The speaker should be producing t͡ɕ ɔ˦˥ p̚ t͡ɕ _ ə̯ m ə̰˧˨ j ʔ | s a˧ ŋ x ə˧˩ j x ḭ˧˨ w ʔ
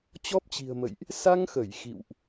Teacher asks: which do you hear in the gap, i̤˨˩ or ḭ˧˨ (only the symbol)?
i̤˨˩